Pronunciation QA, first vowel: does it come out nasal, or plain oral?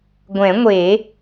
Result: nasal